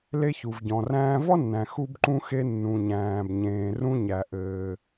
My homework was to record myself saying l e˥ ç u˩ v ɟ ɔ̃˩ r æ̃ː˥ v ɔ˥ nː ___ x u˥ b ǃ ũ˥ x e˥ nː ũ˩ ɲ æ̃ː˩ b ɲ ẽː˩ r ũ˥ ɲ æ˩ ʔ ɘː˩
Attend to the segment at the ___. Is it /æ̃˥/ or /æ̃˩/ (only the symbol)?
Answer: æ̃˩